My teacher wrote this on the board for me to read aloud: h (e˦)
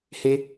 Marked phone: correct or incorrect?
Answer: correct